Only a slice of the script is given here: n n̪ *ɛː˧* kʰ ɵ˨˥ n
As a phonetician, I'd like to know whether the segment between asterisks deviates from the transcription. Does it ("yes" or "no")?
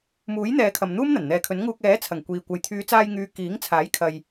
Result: yes